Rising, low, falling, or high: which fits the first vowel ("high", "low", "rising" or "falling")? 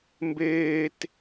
high